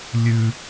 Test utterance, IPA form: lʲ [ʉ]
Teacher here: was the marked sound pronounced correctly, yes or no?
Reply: yes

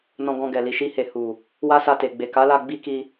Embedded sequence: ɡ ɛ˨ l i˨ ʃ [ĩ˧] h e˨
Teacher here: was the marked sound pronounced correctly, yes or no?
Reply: no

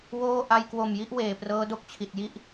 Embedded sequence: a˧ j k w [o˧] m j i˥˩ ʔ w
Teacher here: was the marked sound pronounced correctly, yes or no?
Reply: no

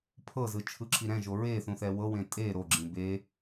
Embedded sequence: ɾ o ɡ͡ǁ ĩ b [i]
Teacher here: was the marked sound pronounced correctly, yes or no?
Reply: no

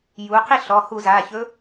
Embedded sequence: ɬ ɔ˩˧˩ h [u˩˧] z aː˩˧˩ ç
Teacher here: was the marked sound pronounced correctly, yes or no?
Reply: no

